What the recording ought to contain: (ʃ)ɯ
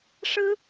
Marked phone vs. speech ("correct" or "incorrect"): incorrect